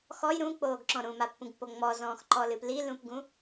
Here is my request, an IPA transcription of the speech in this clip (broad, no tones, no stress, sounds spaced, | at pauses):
x ɔ j ɾ ũ k͡p oː ɡ ǁ ɔ̃ ɾ ũ m a pː ũ ɡ pː o ŋ͡m ɔ z ɔ̃ː x ǃ ɔ l ɨ p l i l ũ p ɡ ũ